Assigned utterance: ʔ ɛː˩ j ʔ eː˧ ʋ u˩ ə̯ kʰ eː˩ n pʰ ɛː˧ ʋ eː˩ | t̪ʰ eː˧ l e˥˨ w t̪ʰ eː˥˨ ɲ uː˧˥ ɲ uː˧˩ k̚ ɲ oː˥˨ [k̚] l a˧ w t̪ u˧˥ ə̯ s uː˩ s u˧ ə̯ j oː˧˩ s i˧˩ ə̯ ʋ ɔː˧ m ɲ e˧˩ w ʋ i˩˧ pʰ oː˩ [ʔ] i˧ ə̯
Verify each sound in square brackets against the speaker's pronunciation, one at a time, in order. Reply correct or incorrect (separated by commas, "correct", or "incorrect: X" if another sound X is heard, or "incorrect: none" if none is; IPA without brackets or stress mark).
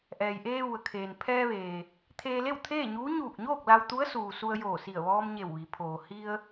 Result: correct, incorrect: h